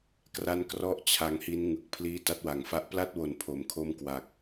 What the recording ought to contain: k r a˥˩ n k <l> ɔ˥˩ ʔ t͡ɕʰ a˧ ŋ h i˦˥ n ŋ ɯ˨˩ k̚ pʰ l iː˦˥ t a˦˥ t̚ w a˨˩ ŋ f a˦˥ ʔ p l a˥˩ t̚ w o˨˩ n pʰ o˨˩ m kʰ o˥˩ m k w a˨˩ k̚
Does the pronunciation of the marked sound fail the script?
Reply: yes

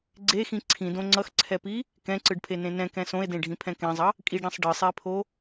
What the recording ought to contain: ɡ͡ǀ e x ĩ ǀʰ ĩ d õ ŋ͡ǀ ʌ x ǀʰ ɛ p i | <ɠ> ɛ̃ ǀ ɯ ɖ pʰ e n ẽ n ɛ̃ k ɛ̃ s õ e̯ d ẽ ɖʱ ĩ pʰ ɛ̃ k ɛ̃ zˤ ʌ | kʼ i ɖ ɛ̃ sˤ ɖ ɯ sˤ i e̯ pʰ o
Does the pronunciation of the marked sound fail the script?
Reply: yes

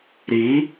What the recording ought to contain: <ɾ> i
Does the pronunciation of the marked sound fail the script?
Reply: no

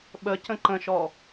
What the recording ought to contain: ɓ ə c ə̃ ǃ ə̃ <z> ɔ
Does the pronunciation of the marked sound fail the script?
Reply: yes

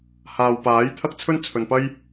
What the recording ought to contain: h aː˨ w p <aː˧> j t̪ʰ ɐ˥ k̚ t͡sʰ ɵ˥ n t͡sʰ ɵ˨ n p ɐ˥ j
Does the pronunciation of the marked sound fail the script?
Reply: yes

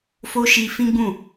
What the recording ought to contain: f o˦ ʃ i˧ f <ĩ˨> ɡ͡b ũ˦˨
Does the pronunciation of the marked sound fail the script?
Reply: yes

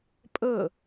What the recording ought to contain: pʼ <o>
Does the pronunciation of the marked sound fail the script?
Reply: yes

